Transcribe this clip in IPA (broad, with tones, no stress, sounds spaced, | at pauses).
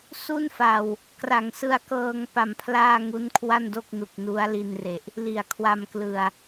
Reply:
s u˥˩ n f a˨˩ w | k r a˩˦ ŋ s ɯ˧ a̯ k ɤː˧ ŋ p a˧ m pʰ l aː˥˩ ŋ u˦˥ n kʰ w a˥˩ n d o˥˩ k̚ n u˨˩ k̚ n u˦˥ a̯ l i˧ n r e˨˩ ʔ | l i˨˩ a̯ kʰ w a˧ m k l ɯ˨˩ a̯